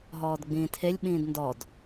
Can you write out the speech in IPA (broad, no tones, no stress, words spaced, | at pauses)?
ɦɔːdɡ͡bĩːtʰelʲ ɓĩːdndɔd